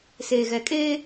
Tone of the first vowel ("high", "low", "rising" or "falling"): low